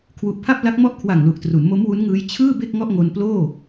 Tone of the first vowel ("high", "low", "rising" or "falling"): low